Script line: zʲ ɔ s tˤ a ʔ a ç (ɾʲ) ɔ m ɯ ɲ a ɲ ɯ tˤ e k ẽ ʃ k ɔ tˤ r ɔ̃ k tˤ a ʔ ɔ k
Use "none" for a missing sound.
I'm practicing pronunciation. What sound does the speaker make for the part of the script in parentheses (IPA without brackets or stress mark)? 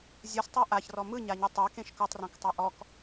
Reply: r